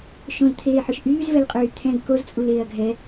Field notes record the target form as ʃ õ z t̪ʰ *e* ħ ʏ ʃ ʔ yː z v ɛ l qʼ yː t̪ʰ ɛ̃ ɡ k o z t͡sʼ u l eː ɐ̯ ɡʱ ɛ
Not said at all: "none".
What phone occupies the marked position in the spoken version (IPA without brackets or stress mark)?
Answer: eː